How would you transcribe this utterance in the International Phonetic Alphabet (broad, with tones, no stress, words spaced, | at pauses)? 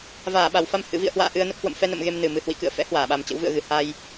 vaː˧˩ɓa˧˩wfa˧m hɨ̰˧˨vḭ˧˨ə̯hwa̰ː˧˨ ʔɨ˧ə̯nə˦˥p̚ hwə̰˧˨mfɛ˧nə̰˧˨m ɣe˧mnɨ˨˩mɨ˨˩ hwḭ˧˨kɨ̰˧˨ə̯fɛ̰˧˥ hwaː˧˩ɓa˨˩m t͡ɕə̰˧˥wvɨ̰˧˨ə̯ɣɨ˨˩ ha˧j